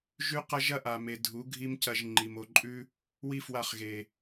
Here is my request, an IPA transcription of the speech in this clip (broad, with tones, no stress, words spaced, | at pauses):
ʒʉ˦qɐ˦ ʒɐ˦ʔa˨me˨ dʱu˨˦ɡʱi˦mcɐ˧ʒ ŋ͡ǃi˨mo˨ǃʼʉ˦ | wi˦fwa˧χɣe˨